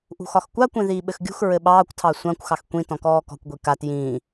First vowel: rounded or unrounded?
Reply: rounded